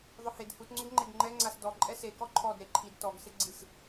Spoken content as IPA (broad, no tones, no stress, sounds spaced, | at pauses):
ðˤ ʊ h e d h u t ŋ͡ǀ ʊ ɡ ŋ͡ǃ e ɡ ŋ͡ǃ ɛ ŋ͡ǀ a s d ɔ ǃʼ ɛ s e k ɔ ǃʰ ɔ d ɾ e ǃʰ i d t ɔ ɡ s ɪ ɡ͡ǀ i s